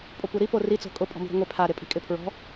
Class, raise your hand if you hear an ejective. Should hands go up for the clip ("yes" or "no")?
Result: yes